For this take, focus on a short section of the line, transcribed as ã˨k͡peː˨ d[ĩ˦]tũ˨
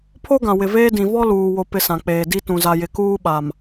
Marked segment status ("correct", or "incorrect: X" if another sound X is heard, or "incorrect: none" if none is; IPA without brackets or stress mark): incorrect: i˦